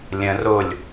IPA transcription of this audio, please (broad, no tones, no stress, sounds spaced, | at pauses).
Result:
lʲ ə̃ r o lʲ